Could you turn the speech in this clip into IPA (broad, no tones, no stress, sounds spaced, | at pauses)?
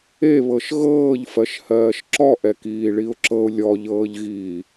e β ɤ ʃ ɣ ɤː ʎ f ɜ ʃ h ɜː ʃ ǁ ɔ ʔ ɛ k iː ɭ i ʊ̯ ǁ ɤ ʊ̯ lʲ ɔ ʎ ɤː ʎ ɣ iː